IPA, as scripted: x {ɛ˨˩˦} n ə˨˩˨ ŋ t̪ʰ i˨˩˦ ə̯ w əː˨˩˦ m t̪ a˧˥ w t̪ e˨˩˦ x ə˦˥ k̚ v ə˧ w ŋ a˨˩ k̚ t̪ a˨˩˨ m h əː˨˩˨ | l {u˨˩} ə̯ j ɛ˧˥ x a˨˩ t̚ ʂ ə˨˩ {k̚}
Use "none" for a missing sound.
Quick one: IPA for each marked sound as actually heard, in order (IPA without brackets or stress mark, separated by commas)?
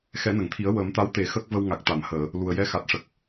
ɛ˨˩˦, u˨˩, k̚